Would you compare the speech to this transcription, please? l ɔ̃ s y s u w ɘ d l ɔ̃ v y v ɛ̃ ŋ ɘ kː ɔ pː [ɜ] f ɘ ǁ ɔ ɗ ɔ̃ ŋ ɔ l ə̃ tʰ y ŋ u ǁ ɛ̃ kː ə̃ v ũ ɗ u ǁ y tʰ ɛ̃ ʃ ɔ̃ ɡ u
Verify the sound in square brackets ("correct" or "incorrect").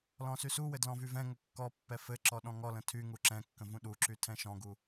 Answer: incorrect